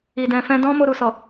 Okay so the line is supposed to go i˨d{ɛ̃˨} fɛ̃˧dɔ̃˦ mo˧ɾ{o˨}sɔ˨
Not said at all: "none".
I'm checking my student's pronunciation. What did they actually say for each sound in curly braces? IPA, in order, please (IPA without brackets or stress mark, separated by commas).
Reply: ɛ̃˨, u˨